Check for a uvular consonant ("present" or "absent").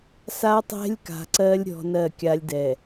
absent